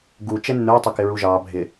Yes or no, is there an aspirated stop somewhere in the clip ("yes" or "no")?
no